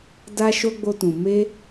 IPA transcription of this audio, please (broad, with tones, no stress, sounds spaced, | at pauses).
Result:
d a˧ ʃ o˧ ɡ͡b o˧ t ũ˨ m e˧